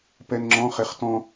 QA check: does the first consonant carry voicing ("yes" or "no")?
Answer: no